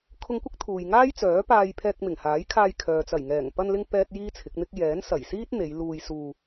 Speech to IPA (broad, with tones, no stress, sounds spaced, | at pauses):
kʰ ʊ˧ ŋ kʷ ɪ˥ k̚ t̪ʰ uː˨ j ŋ aː˥ j t͡s œː˨˥ p aː˧ j pʰ ɛː˧ k̚ m ɪ˨˩ ŋ h aː˨˥ j kʰ aː˧ j kʰ œː˨ t͡s ɐ˨˩ j ŋ ɛː˨˩ ŋ p ɐ˧ n l ɪ˧ ŋ p ɛː˥ t̚ j iː˥ t͡sʰ ɪ˨˥ k̚ n̪ ɪ˥ k̚ j ɛː˨˥ n s ɐ˨˩ j s iː˥ t̚ n̪ e˨˧ j l uː˧ j s uː˧